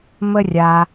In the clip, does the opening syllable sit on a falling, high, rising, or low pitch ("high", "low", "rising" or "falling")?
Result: high